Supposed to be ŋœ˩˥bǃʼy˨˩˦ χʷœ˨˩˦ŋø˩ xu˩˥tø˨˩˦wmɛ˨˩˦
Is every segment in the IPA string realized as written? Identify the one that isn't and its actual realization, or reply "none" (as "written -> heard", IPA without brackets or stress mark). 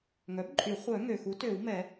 none